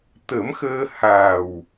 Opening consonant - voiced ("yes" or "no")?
no